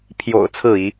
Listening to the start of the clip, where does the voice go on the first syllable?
low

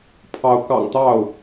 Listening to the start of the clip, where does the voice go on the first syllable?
rising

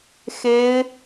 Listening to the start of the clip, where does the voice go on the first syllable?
high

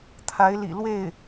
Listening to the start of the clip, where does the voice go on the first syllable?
rising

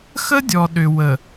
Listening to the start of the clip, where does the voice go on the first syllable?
high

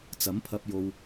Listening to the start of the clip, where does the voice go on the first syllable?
rising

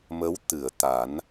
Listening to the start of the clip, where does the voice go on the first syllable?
rising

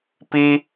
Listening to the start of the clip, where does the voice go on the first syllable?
high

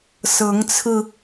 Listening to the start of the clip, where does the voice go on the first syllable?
rising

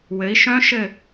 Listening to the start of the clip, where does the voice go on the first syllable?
rising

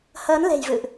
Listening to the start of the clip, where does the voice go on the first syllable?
rising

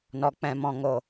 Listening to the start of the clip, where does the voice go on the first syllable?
low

